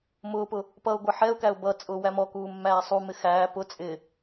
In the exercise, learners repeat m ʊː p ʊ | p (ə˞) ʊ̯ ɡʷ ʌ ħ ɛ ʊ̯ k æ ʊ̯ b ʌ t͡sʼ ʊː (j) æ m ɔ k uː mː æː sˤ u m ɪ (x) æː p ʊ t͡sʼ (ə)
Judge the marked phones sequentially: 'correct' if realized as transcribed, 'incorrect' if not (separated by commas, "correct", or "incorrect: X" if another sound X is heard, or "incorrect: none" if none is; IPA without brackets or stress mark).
incorrect: ʌ, incorrect: w, correct, incorrect: ɪ